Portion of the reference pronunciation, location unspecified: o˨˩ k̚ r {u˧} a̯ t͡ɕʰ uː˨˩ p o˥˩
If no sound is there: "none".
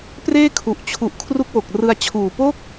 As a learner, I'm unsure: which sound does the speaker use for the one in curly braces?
ɯ˧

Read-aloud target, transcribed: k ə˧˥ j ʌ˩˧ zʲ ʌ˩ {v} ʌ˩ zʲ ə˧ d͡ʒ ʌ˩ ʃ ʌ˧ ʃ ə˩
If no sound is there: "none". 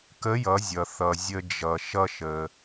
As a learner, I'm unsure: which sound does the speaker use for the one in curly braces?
θ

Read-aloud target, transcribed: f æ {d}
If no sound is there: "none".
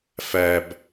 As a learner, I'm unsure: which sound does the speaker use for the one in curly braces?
b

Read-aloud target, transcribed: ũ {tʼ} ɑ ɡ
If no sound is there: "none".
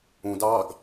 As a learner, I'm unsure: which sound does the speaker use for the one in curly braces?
d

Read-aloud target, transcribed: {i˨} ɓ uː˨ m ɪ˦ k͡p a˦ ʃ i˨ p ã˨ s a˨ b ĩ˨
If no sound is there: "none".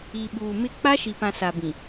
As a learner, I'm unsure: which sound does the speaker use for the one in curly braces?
i˨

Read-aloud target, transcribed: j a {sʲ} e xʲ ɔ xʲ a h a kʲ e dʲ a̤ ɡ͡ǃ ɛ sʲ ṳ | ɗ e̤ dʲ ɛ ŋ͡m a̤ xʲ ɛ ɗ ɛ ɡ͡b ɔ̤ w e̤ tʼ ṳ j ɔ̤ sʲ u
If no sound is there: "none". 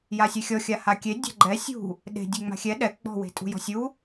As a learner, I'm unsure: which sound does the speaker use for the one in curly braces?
sʲ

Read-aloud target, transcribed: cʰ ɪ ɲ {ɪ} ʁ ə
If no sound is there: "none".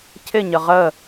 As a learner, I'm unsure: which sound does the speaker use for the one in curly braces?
ə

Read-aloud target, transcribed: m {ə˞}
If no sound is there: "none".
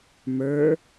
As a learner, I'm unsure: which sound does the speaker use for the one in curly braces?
ə˞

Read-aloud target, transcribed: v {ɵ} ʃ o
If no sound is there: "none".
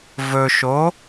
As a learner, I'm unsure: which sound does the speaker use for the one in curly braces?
ɵ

